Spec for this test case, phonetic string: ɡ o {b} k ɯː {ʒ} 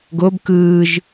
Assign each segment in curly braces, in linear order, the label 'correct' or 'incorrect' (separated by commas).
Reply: correct, correct